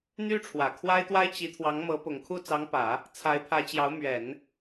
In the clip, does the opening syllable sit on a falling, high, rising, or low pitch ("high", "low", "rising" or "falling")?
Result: high